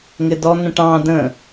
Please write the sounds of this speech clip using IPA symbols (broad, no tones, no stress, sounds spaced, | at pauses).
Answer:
ŋ ɪ d ɔ n̪ ə̃ ʈ ɑ̃ d ə̃